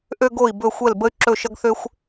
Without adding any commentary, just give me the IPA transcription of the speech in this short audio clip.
ʔ ø˧ ɡ o˧˩ i̯ b ɵ˧˩ xʷ ɛ˧˩ l b ə˧ y̯ ǁ ɵ˧˩ ʃ ʌ˧ ɡ θ ø˧ xʷ

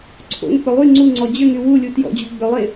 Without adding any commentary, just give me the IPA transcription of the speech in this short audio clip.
ǀʰ o̰ ŋ k͡p ʏ lˠ y ŋ͡ǀ u ŋ͡ǀ ɔ d͡ʑ ʏ ŋ y w u lʲ u t j ɔ̰ d͡ʑ u ɡ͡b ʏ lˠ e

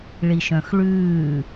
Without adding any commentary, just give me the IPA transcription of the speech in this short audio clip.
ɭ i ʃ œ̃ x ɭ ʉː

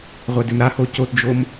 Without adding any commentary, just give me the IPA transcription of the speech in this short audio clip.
ʁʷ ɛ d ʏ m ɾ a h o c o t d͡ʒ o m

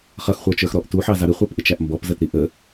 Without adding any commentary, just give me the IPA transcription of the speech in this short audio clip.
χ ʌ x χʷ ə˞ t͡ʃ ə˞ x ɾ ɔ ʔ t u ħ ɑ z ɑ ɾ ɪ χʷ ə˞ p ʔ ɪ t͡ʃ æ ʔ m b ɔ p z ə t ɾ i ʔ ə

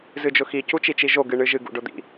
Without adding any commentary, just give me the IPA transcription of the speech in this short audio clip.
z ɨ d͡ʒ ʊ x i c u t͡ʃ i t͡ʃ i ʒ o ɡ ɨ ɳ ɨ ʒ ɨ ɡ ṵ ɖ ʊ d̪ ḭ

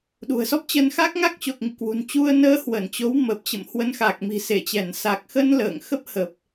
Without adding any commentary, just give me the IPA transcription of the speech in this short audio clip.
ɗ ṳ˨˩ ə̯ s ɔ˦˥ p̚ t͡ɕ ə˧ n x a˦˥ k̚ ŋ a˦˥ k̚ t͡ɕ o˨˩ k̚ ŋ ḭ˧˨ k w ṳ˨˩ n t͡ɕ u˧ ə̯ n əː˨˦ h w ə˧˩ n t͡ɕ o˨˦ w m ə˨˩ p̚ t͡ɕ ə̰˧˨ m h w ə˨˦ n x a˨˩ k̚ m i̤˨˩ s e˧˩ t͡ɕ ɛ˧˩ n s a˨˩ k̚ x ə˧ n l ə̰ː˧˨ ŋ x ə˦˥ p̚ h ə˨˩ p̚

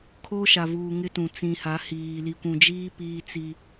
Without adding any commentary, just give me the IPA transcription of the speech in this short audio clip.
kʰ o˦ ʃ a˨ v uː˨ ŋ ɪ˦ t ũ˨ t͡s ĩ˨ h a˨˦ h iː˨ l i˨ kʷ ũ˨ d͡ʒ iː˦ p iː˦ t͡s i˦

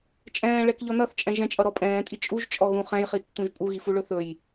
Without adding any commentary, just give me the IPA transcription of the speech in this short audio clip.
t͡ʃʼ ɛ̃ː ɭ ɛ k ʎ ɔ n ʌ θ t͡ʃʼ ɛ̃ ʒ ɛ̃ t͡ʃʼ ʌ ɾ ɔ pʼ ɛ̃ː tʼ i t͡ʃʼ u ʒ t͡ʃʼ ɔ ɣ ũ χ ɛ̃ j χ i tː ũ ʒ pʼ u ɣ i f u ɭ ɵ θ ɵ j

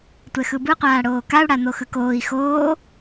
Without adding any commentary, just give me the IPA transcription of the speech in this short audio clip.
tʷ ɛ x ɯ b ɯ qʷ aː ɽ oː k a u̯ ɽ a n̪ o x ɯ k oː i̯ x oː

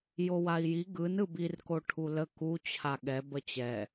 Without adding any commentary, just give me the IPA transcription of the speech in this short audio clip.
j o w a i̯ j i ɡ ɯ n ɯ b i r k o ʈʰ u l ə k u t͡ɕʰ a ɠ ɛ b ə t͡ɕ ɛ

